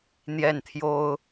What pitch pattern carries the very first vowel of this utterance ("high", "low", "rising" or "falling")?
falling